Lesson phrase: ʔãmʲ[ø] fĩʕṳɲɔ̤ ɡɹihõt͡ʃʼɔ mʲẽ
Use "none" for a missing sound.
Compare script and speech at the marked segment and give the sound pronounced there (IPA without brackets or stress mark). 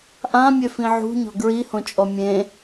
ø